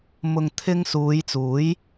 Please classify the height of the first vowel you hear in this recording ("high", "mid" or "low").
high